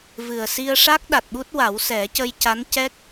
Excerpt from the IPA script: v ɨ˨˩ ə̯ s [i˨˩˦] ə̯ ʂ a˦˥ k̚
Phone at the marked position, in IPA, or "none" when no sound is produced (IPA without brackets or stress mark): i˧